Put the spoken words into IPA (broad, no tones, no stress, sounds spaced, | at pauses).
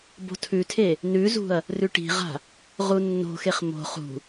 b o̤ tʰ ʉ tʰ e | n ʉ z ṳ ɐ̯ | r ʉ ʈ i̤ ʁ a̤ | ʁ u nː o̤ x e χ m o̤ χ ṳ